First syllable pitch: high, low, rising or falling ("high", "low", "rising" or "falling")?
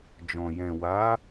low